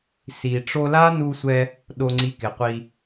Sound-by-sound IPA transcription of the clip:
s i˨ ʈ͡ʂ o˧ l a˦ n u˧ sʷ ɛ˧ | ɗ o˧ ŋ͡ǀ i˧ k ɪ˨ qʷ i˧

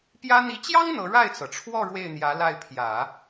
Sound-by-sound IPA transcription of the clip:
p j ä˥ n̪ i˧˥ t͡ɕ j ɑ˥ ŋ n̪ ɤ˧˥ ɻ a˥˩ ɪ̯ t͡s ɤ˩ ʈ͡ʂʰ w ɔ˥˧ ɻ w e˥˩ ɪ̯ n̪ j ä˧˥ l a˥˩ ɪ̯ pʰ j ä˨˩˦

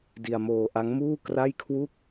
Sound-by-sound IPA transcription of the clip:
d i˧ a̯ m oː˧ ʔ a˦˥ ŋ m uː˥˩ k r a˥˩ j kʰ w u˥˩ k̚

